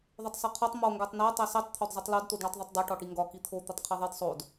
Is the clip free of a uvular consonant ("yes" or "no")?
no